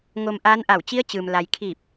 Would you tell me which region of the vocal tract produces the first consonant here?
velum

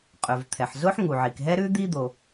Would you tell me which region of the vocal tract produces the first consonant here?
uvula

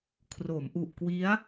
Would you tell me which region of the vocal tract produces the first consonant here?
velum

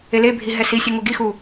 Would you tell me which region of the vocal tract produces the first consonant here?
tongue tip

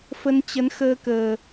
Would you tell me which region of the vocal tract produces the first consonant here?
lips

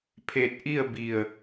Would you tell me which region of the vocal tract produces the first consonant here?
lips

